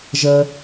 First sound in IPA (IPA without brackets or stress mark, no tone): ʒ